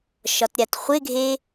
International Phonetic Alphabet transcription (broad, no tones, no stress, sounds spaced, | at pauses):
ʃ ɒ t ɾʲ a t χʷ ɪ ɡʱ e